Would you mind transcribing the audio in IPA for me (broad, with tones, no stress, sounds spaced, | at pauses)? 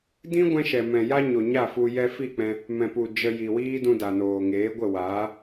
d ĩ˦ ɡʷ ɛ̃˧ ʃ ɛ˨ m ɛ̃˨ j a˧ ɲ o˨ ɲ a˦˨ f u˧ j ɛ˧ f i˦˨ k͡p ɛ̃˧ | m ɛ̃˨ p u˨ d͡ʒ ə˧ j i˨ w iː˦ d ũ˧ d a˨ n oː˨ ŋ eː˨˦ ɡʷ ə˦˨ w aː˨˦